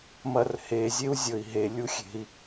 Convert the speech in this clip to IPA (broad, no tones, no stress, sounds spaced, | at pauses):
m ɐ r h e zʲ e u̯ zʲ ɵ i̯ ɦ e lʲ u xʲ e̤ i̯